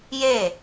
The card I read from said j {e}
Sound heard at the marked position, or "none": e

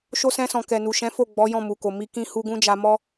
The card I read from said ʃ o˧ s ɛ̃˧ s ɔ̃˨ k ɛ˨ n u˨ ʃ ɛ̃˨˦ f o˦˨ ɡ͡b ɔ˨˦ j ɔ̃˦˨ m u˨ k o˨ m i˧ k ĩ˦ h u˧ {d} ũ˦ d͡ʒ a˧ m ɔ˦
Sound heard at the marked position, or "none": ɡ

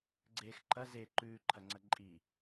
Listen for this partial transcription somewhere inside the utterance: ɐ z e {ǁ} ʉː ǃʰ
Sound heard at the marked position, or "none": ǃ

